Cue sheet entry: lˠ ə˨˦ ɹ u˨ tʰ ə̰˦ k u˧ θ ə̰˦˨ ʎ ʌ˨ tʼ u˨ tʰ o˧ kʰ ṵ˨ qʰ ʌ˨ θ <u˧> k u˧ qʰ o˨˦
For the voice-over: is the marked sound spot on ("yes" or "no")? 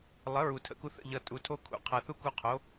no